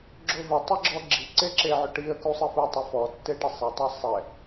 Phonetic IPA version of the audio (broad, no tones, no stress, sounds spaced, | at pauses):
ɡ͡ǁ o v ɪ tˤ e ɡ͡ǁ ɔ ɡ͡ǁ i ǀ e ǁ e ʕ ʊ ʈ i ə̯ k u sˤ e f u tˤ e f ɔ tː e ʈ e sˤ e tˤ a sˤ ɛ